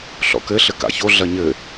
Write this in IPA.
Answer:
ɬ ɔ̰ k ɘ ɬ ɘ k a̰ ç o ɮ ɐ ɲ ɘ

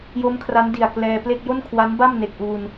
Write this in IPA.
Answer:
j o˦˥ m kʰ r a˦˥ n d i˨˩ a̯ k l ɛː˧ p l e˥˩ k̚ j o˥˩ n kʰ w a˦˥ n b a˥˩ m n e˨˩ k̚ ʔ uː˧ n

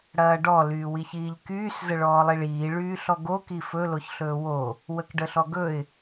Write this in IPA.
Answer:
ɽ ɐː ɖ ɔ l yː w i ç iː ʎ k yː s z ə ɭ ɔː lˠ i ɭ iː ɭ yː ɬ ɔ ɡ o k i f ɵ l o ç ɬ ɵː w o | w ə k ɖ ə ɬ ɔ ɡ ɵ ɪ̯

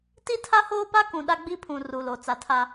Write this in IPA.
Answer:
t i˦ tʰ a˦ h oː˦ p a˦ k ũ˨ ɗ a˦ ɡ͡b i˦ pʰ ũ˨ r u˨ l o˨ t͡s a˨ tʰ a˦

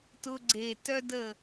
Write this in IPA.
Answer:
t ʊ˧ ɡ͡ǀ e˨ t œ˦ d ə˦˨

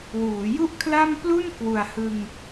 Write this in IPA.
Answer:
w uː˩˦ j u˥˩ ʔ kʰ l a˥˩ m p l u˥˩ n k w u˨˩ a̯ h ɯ˧ ŋ

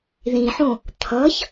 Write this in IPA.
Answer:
ð ĩ ħ õ | t̪ʰ ʌ ç

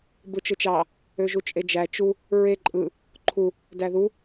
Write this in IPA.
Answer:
b ɯ t͡ʃ ɯ t͡ʃ ɑ | ø ʒ u t͡ʃʼ e d͡ʒ æ t͡ʃ u | ɹ e ǃʼ ɯ | ǃʰ u | d æ ð u

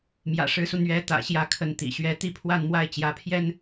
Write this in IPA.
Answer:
m j ä̰˨˩ ʂ ɻ̩˧˥ s u˧ n̪ ɥ ɛ˧˥ t̪ ä̰˨˩ ɕ j ä˥˩ kʰ ə˧˥ n t̪ ḭ˨˩ ɕ ɥ ɛ˥ t̪ i˥˧ pʰ w a˥˧ n m w a˥˩ ɪ̯ t͡ɕ j ä˧˥ pʰ j ɛ˥ n

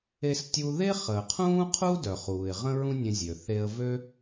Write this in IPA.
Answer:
e˧ s tʲ u˧ ð e˥ χ əː˩ qʰ ũː˥ qʰ u˥ d œ˩ χ uː˩ ɪ̯ ʁ ə̃˥ ɹ ũ˥ nʲ ə̃˧ zʲ ø˩ θ e˧ ə̯ v ø˥

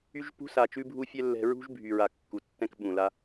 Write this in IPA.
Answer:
y˦ ʒ p ṳ˦ s a˨ t͡ʃ ʉ˧ bʱ u˧ fʲ ɛ˦ lː ɛ̤˧ ɹ ṳ˦ ʒ bʱ y˨ ɹ a˨ kː u˨ tː ɛ̃˦ k ɓ ũ˨ l a˧

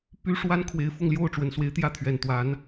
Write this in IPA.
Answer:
p y˥ ʂ w a˥ n kʰ w e˧˥ ɪ̯ f ʊ˥˧ ŋ l j o˥˩ ʊ̯ ʈ͡ʂ w ə˨˩ n s w e˧˥ ɪ̯ t̪ j ä˥˩ t̪ʰ ɥ ɛ˨˩ n t̪ w a˧˥ n

